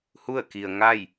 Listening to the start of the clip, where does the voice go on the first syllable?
falling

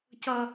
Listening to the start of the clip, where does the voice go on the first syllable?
low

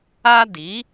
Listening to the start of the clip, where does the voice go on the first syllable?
high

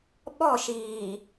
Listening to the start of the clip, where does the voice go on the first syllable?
falling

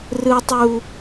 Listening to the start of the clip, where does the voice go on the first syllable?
high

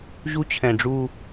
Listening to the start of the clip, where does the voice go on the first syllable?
high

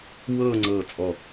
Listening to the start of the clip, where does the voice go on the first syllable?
falling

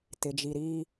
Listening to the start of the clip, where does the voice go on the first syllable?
low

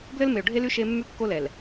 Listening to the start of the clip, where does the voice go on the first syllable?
high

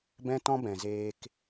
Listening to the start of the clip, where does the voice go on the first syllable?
high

